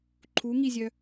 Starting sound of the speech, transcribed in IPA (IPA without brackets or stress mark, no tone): ǃʰ